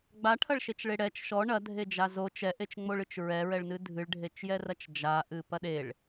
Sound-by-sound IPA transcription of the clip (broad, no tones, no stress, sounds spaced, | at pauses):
ɡ͡b a ʈʰ ɐ ɭ ʃ e t͡ʃ ɭ e ɽ ɛ t͡ʃ ʃ ɔ ɳ ɐ dʱ e d͡ʒ a z o t͡ʃ ɛ ʔ e t͡ʃ ŋ͡m o ɭ ɨ t͡ʃ ɹ ɛ ɹ ɛ ɭ n ɨ dʱ ɨ ɭ ɖʱ e t͡ʃ j ɛ r ɐ t͡ʃ d͡ʒ a ʔ ɨ p ɐ ɗ e ɭ